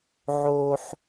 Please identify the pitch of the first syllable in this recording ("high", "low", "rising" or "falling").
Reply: high